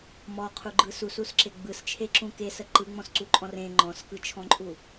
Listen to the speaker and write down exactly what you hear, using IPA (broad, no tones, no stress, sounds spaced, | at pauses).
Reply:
m ɔ qʰ u ɡ͡ǃ ɯ s u s u s ǁ e ɡ͡b ɯ s t͡ʃʰ e ǁ ũ k e s ə ǃ ɯ ŋ͡m ɔ̃ s ǀ u ǃʼ ɔ̃ r ẽ ŋ͡ǃ ɔ̃ s k ɯ t͡ʃʰ ɔ̃ ǃʼ u